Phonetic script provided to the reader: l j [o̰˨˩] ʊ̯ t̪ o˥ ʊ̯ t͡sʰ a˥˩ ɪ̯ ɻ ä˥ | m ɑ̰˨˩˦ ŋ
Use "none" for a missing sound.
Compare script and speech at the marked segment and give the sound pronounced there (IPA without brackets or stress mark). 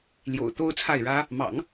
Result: o̰˨˩